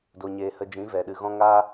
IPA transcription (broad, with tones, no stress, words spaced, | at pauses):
do˨ɲeː˨hə˨ d͡ʒĩ˨˦vɛ˨ ɗɨ˨ɣɔ̃˧ ŋaː˦